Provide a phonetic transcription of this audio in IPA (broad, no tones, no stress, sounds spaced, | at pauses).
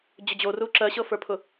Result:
d͡ʑ ʊ d͡ʑ o r u ǁ ɜ ɕ ɤ f ə˞ pʰ ʊ